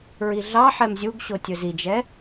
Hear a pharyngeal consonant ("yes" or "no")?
yes